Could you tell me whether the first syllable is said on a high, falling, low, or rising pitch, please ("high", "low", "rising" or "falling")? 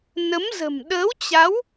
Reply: rising